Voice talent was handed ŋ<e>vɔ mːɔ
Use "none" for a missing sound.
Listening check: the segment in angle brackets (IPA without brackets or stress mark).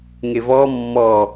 e